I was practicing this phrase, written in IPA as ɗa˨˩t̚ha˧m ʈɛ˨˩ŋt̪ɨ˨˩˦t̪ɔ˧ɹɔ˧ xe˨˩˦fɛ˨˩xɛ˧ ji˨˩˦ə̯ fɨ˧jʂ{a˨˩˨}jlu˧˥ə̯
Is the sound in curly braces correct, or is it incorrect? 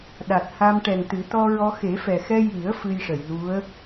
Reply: incorrect